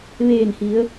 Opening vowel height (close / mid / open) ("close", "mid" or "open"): mid